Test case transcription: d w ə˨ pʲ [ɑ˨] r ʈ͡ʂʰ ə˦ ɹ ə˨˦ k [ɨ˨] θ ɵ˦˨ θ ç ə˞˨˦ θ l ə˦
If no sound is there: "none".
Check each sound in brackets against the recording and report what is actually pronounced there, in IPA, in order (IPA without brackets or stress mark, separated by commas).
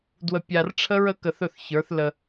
a˨, ə˨